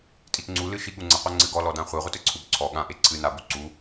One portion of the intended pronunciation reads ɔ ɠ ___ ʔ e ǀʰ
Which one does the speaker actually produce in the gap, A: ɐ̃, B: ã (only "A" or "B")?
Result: B